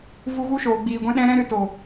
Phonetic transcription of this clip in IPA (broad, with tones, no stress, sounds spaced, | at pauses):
v u˧ ɣ u˦ ʃ oː˨ ɡ͡b iː˨ ɡʷ ɛ̃˦ ɗ ɛ̃˦ ɾ ɛ̃˦ ɾ ɨ˧ t o˨